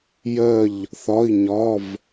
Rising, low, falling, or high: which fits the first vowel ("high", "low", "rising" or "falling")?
falling